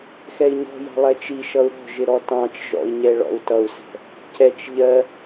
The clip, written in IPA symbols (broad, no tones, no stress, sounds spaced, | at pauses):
x ɛ i̯ ɲ ɔ̤ j ɑ̤ lˠ ɛ t͡ʃ i ʃ ʌ u̯ ɾ ɔ̤ ʒ ɪ ɾ ɔ t ɑ̃ t͡ʃ ʒ ɔ̰ i̯ ɲ ɛ ɭ ɔ̰ u̯ t ʌ u̯ s ɛ̤ | c ɛ t͡ʃ ʎ ɜ